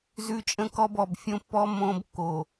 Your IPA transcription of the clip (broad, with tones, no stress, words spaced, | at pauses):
zʉ˦t͡ʃʼə̃˦kɔ˦b ɔ˨bfʲõ˦pːɔ˦ mõ˦bkːo˨